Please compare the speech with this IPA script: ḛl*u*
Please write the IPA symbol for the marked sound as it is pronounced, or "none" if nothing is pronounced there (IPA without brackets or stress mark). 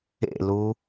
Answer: u